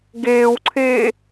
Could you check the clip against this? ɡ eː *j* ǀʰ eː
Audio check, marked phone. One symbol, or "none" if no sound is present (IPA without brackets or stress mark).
w